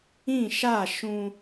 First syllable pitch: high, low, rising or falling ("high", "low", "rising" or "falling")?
falling